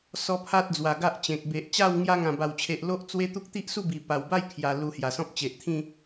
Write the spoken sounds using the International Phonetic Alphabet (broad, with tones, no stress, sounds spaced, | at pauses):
s ɔ˦ pʰ a˦ t̚ d͡z w a˨˩ ɡ a˦ ʔ t͡ɕ ẽ˨ k̚ b e˨ ʔ t͡ɕ a˥˧ w ŋ j a˧ ŋ ã˨˩ b a˨˩ w t͡ɕʰ e˨ ʔ l o˦ ʔ t͡s w e˦ t̪ u˦ k̚ t̪ i˦ ʔ s u˥˧ b i˨˩ p a˨˩ w b a˥˧ j kʰ j a˧ l u˧ h j a˨˩ s ɔ̃˦ p̚ t͡ɕ e˨ ʔ t̪ʰ ĩ˥˧